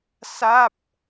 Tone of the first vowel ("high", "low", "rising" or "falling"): falling